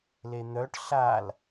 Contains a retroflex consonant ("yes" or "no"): yes